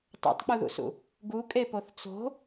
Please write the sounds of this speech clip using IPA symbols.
tˤo̰tˤk͡puðṵsṵ | ɡu kʼepoθt͡so̤

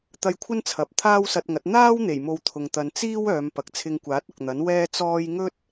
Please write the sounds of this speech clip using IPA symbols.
t̪ɐ˧jkʷʰɐ˥n t͡sʰɐ˨p̚ t̪ʰaː˥wsɐ˧t̚ŋɐ˨˥t̚ n̪aː˥wn̪e˨˩j mo˧wt̪ʰʊ˨ŋt̪ɐ˨˧n t͡siː˥w œː˨˧mpɐ˨k̚ t͡sʰɪ˧ŋkʷaː˨˥t̚ ʊ˨k̚n̪ɐ˨˥n wɛː˥t͡sɔː˥j ŋɵ˥t̚

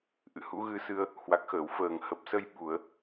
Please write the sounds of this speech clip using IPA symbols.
ʔɨ̰˧˨hṵ˧˥ɣɨ˧sɨ˧ə̯ | hwa˨˩k̚xəː˧˩w fəː˧˩ŋhə˨˩p̚sə˧j ɓu˧˩˨ə̯

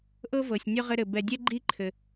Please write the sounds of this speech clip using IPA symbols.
ʔɤ˥vɤ˩sʲ nʲɔ˥ʁɘ˦ɾɘ˩ bɛ˨dʲɛ˥ ɡ͡ǃi˥ǃʰɘ˩

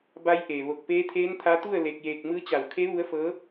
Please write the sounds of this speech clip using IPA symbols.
ba˧˥jʔeː˩ ʋo˧˩k̚peː˧˥t̪ʰeː˧˥nt̪ʰa˧˥ t̪u˥˨ə̯ le˧k̚jeː˧k̚ mɯː˧˥t͡ɕa˧˩w kʰe˧˥ ʋu˧˥ə̯fɤː˧˥

